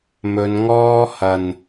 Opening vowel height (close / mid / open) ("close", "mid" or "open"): mid